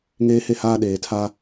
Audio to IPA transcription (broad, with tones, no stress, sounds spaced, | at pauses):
ŋ eː˦ h e˦ h aː˦ ɗ eː˨ tʰ a˦